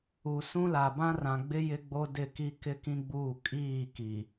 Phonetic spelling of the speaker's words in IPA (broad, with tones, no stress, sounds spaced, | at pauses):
u˨ s ũ˦ l a˨ b ã˦ r ã˨ ɡ͡b ɪ˦ j ɪ˦ ɡ͡b o˦ d ɪ˦˨ k i˦ k ɪ˦ k ĩ˦ ɡ͡b uː˦˨ kʼ iː˦˨ k i˨